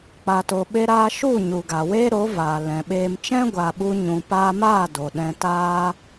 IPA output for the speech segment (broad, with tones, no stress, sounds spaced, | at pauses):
k͡p a˨ t o˨ ɓ e˧ ɾ aː˧ ʃ u˦˨ ɲ u˨ ɡ a˨ w eː˦ ɾ o˨˦ v aː˨ l ɛ̃˨ ɓ eː˧ m t͡ʃ ɛ̃˦ ɡʷ a˨ ɓ u˧ ɲ ũ˨ p aː˧ m aː˦˨ d o˨ ɗ ɛ̃˧ t aː˦